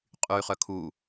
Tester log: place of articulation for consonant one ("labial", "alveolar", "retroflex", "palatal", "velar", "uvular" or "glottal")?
uvular